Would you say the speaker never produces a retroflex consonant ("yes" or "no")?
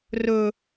yes